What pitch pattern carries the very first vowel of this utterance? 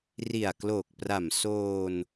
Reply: low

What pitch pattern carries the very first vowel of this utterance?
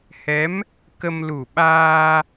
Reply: rising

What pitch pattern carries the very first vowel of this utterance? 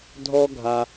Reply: high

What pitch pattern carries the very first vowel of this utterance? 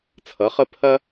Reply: rising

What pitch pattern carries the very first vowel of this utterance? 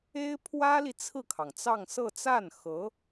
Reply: high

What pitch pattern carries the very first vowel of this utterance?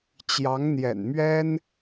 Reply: rising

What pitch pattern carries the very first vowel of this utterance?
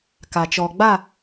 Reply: low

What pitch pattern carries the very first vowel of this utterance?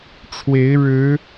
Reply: rising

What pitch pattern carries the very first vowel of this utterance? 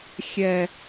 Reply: low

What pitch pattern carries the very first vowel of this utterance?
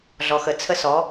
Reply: low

